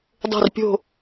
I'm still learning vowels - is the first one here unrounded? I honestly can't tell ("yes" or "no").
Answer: no